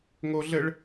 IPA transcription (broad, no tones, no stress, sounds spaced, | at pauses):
ŋ o ɮ ɘ ɭ